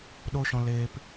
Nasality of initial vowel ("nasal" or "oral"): oral